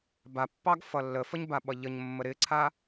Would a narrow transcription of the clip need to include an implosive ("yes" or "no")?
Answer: yes